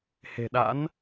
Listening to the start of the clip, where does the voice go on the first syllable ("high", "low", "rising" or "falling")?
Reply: low